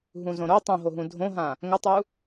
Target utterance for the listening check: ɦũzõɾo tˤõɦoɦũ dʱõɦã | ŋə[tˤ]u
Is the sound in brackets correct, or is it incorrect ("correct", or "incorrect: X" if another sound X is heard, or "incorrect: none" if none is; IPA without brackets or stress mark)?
correct